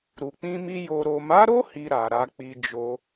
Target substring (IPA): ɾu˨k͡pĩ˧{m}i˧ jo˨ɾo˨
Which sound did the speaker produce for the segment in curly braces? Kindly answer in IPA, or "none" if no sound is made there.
m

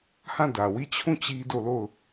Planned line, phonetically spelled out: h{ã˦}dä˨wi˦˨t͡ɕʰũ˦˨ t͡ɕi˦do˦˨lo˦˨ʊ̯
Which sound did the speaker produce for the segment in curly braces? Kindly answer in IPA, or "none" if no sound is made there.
ã˦˨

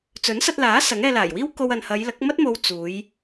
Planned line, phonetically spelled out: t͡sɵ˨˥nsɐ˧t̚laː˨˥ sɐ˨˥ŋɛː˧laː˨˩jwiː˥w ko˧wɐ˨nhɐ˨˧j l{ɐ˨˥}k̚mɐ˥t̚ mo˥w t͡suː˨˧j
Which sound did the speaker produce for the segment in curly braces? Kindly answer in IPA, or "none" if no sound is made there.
ɐ˨˥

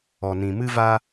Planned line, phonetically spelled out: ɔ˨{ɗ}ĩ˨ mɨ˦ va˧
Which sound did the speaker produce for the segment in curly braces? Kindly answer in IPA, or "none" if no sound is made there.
n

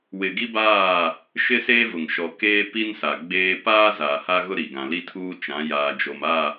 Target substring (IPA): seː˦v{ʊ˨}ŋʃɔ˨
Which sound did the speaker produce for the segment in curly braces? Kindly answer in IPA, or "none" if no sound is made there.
ʊ˨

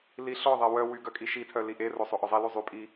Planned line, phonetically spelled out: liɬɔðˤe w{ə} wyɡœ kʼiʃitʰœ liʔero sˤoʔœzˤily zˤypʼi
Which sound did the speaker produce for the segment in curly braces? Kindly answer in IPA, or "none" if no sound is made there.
œ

